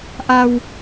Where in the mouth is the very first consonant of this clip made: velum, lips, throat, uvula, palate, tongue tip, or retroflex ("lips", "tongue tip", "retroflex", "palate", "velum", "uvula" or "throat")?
throat